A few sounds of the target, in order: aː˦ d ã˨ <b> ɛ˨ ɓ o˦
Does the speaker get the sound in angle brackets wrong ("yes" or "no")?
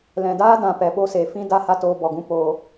yes